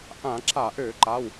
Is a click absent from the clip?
no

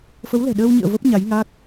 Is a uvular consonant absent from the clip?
yes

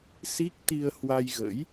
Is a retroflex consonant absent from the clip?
yes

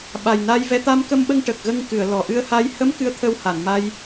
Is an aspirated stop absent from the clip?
no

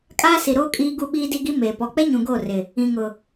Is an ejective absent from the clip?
no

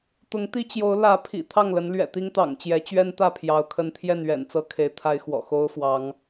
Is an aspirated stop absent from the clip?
no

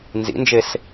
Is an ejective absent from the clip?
yes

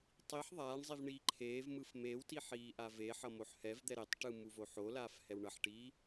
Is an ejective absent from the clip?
yes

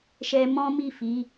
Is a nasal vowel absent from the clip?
no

